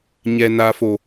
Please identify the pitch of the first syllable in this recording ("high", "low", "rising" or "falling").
high